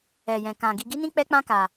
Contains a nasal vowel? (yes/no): yes